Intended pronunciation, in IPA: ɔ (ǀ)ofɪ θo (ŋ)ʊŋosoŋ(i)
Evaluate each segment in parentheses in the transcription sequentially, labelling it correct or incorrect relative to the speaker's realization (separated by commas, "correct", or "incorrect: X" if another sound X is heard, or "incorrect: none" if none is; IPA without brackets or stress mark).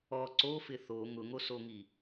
correct, correct, correct